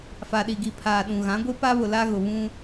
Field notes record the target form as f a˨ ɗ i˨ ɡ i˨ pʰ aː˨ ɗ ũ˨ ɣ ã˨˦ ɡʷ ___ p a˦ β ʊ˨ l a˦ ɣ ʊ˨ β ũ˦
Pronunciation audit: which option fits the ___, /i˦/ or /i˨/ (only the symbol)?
i˦